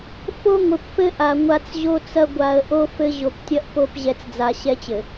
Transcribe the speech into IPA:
fo˦ŋʷɘ˨pfɘ˦ ʔa˨ŋʷa˦t͡sʑo˦t͡sɐ˦ ɡʷa˨ə̯ʔo˦ fɘ˦ ʑo˨ptʲɐ˦ʔ po˦˨pʑɛ˨t͡sd͡za˨ ɕɛ˦t͡ɕɘ˨

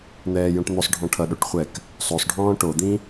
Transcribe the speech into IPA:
n̪ɛːjõʈn̪osˤɖʱɔ̃ ʈʰʌɗoʈ χʷɛk | sˤosˤɖʱɔ̃ː ʈod̪ĩ

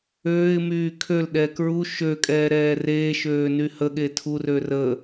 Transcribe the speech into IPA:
øːɪ̯ myːkʰølɗɛː kɹu ʃøkʼɛː ɾɛːreːʃøː nyhəɠe tʰurø rə

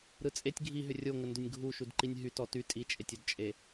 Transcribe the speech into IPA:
ɾɯt͡sʼetʲ ɡʱiɦʏ rʲoŋəndʏnʲ ɡʱu ʃudǃinʲɦy tɔty tʼit͡ʃʼetʲ ʏdt͡ʃʼe

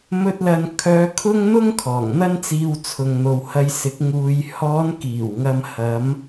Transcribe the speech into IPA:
mɵ˧t̚lɐ˨n kʰœː˨˧ kʰʊ˥ŋn̪ʊ˥ŋkʰɔː˨˩ŋ n̪ɐ˥nt͡siː˧wt͡sʰʊ˨ŋn̪o˨w hɐ˧jsɪ˨˥k̚ ŋuː˨j hɔː˨˧nkiː˨˩wŋɐ˨m hɐ˨˧m

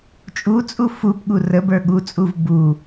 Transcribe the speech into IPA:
t͡ʃʼut͡sʼu fupɠu rəbə˞ ɠut͡sʼuv bu

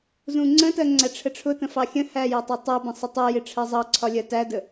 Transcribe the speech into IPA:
zũŋ͡ǀə̃tɜ ŋ͡ǀæʈ͡ʂʰəʈ͡ʂʰʊtə̃ fɑxʲə̃hæ jɒtˤɑtˤɜbə̃ sˤɪtˤɜjɪ ʈ͡ʂʰɜzˤɑǀʰɒ lʲɜtædə

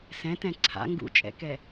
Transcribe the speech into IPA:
sɛ̃tɛ̃ ǀʰa̰ ŋɡṵt͡ʃʼɛ̰kɛ

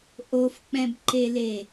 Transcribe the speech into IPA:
ʔofk͡pɛ̃bǃele

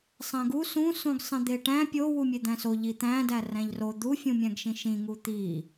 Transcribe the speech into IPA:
sˤæ̃ɡu sũ sũɡsˤẽd̪eʈæ̃ pʲo wumʲed̪æ̃so ʎit̪æ̃dæ ræ̃ʎro d̪ufʲũmʲæ̃ɡʃĩ ʃĩŋu t̪i

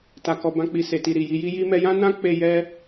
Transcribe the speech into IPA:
ta˨kɔ˨ bã˧k͡pi˨ se˨ti˨ ɾi˨ji˧ ji˧ji˧mɛ˧jã˦ nã˦k͡pe˧ jɛ˦

